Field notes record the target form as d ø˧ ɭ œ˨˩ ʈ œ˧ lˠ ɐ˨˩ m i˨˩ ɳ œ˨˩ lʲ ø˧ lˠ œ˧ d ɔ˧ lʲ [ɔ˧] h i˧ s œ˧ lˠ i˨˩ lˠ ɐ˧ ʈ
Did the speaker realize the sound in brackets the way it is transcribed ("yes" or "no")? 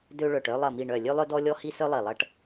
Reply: yes